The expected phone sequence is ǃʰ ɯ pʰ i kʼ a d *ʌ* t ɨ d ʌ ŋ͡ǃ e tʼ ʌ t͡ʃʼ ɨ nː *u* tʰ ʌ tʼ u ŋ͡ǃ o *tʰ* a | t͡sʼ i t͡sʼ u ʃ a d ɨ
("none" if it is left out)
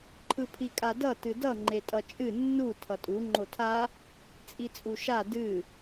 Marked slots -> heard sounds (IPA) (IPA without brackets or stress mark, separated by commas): ʌ, u, tʰ